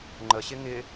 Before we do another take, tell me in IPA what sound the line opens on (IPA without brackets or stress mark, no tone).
ŋ͡ǃ